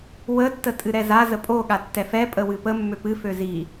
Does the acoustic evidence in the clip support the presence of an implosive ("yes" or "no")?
yes